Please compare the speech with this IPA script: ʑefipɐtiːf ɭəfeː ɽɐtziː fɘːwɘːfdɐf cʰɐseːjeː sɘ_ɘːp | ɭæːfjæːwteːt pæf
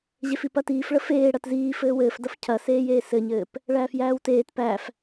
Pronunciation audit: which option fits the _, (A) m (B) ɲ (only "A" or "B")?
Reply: B